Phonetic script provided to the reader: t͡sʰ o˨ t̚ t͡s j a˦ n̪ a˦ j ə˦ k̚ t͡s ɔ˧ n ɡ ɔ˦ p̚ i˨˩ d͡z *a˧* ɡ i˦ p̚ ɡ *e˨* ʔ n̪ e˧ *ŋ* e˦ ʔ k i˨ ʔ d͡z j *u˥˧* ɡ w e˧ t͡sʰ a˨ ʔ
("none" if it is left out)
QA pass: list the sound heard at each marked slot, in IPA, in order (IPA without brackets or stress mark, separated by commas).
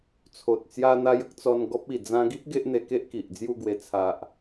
ã˧, e˦, k, u˥˧